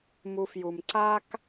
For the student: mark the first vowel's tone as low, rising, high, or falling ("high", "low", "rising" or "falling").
low